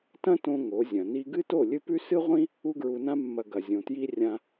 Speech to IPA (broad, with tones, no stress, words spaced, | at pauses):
tɐ̃˦tõ˧ ŋo˨˦zʲɐ̃˨ ni˧ɡɨ˦ to˦˨lʲɨ˦pʉ˦ sɨ˦ʁʷĩ˦ | u˧ɡɹu˨nã˧mːɐ˨ ɡɐ˨zʲõ˨tji˦ rʲã˧